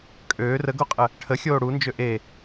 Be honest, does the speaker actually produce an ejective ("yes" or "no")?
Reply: yes